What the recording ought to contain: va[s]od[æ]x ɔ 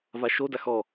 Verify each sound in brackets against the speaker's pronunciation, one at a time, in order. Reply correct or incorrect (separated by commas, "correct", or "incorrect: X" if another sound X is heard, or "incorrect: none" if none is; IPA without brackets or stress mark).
incorrect: ʃ, incorrect: a